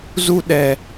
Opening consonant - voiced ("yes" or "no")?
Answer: yes